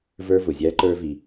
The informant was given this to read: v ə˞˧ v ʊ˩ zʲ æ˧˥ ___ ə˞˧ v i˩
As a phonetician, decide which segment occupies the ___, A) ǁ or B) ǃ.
B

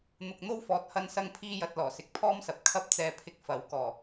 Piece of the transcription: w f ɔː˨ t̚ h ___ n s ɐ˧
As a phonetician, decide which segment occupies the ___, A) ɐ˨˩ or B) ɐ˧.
B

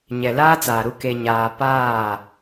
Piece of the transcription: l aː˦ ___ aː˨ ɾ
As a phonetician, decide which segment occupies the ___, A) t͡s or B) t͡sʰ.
A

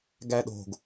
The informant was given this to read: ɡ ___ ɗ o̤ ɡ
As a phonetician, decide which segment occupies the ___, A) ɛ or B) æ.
B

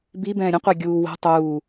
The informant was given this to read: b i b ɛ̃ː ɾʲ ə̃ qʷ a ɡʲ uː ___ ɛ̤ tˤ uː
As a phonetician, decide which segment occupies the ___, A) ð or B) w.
B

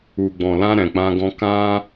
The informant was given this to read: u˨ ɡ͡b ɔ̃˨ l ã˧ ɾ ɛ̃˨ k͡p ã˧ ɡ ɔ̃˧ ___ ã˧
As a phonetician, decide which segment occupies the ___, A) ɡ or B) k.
B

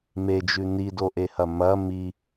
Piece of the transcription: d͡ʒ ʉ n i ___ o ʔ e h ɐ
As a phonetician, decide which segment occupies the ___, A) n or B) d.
B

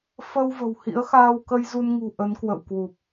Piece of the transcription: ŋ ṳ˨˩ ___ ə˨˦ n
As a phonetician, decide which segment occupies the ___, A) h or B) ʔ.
B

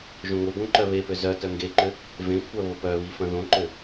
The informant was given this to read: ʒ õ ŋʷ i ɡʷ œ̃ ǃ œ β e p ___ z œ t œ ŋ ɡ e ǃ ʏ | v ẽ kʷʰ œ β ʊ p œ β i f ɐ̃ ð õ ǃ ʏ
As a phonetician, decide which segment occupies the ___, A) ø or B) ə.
A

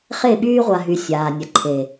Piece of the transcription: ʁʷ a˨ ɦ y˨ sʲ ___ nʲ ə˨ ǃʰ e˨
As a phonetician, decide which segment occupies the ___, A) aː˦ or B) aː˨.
B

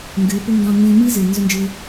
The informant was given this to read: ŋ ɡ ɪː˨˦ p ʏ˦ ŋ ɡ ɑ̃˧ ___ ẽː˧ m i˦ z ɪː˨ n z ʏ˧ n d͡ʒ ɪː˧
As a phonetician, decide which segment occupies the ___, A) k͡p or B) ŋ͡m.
B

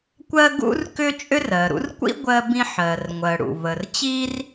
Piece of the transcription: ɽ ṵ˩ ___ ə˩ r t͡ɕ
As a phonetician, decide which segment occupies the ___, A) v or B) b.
A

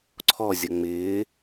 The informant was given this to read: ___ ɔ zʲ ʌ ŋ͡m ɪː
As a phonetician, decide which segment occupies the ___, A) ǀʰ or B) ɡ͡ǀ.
A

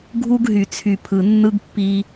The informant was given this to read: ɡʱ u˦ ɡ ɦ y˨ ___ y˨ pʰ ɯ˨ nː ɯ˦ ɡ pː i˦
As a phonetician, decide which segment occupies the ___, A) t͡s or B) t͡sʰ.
B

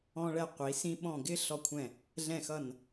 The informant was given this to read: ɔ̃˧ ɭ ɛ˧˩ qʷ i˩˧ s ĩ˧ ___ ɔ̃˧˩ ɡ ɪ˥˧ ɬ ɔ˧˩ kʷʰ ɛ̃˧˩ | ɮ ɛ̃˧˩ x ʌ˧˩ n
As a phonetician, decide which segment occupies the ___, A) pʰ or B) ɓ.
B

